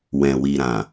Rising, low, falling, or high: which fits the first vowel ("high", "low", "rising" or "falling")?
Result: low